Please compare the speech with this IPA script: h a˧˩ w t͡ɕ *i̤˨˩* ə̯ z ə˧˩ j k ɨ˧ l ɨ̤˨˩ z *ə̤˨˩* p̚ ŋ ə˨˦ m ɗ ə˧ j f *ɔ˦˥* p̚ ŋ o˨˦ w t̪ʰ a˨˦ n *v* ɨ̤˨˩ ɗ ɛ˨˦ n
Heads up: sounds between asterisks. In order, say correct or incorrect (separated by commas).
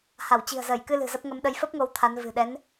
correct, incorrect, incorrect, correct